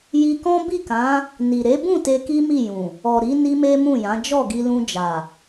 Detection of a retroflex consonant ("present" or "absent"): absent